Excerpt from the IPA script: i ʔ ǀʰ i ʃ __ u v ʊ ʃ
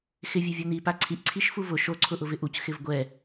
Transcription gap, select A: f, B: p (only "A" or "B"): A